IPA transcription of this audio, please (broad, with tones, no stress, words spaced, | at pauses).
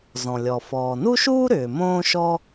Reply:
zɔ̃˩lʲɔ˩ fɔː˩nu˥ʃuː˥ ɾʏː˩mõː˥ ʃɔ˥